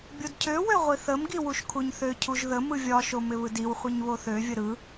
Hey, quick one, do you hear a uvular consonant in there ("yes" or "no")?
yes